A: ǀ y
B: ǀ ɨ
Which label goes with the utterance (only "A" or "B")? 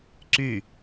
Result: A